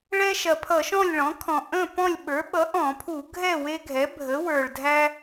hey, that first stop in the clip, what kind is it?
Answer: aspirated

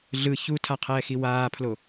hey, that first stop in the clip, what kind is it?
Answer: aspirated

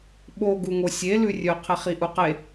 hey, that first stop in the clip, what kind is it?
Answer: implosive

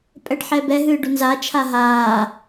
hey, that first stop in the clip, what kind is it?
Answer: ejective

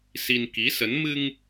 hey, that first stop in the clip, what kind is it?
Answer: plain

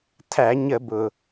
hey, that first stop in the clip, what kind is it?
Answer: aspirated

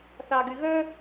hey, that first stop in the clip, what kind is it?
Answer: plain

